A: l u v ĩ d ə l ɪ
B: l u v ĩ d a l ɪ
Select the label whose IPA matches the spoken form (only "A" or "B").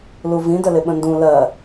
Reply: A